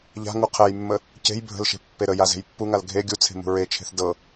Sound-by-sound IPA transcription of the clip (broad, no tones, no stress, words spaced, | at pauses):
ʎa̤ ŋuqʰɛjmːə | ce̤j bʱə̤lʃe̤ pːeɾəja ze̤jpːuŋal ɡʱe ɡʲut͡sʰe̤ mṳɹet͡ʃʰe̤θ dɤ